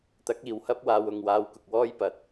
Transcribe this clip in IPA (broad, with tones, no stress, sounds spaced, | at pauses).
t̪ ɐ˨˥ k̚ iː˨ w h ɐ˥ p̚ w aː˧ w ʊ˨ ŋ w aː˧ w k ʊ˨ k̚ w ɔː˥ j p ɐ˨ t̚